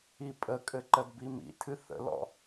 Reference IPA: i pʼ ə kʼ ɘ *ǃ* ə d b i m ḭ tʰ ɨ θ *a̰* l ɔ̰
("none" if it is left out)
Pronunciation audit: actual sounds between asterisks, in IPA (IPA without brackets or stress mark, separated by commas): ǃ, ə̰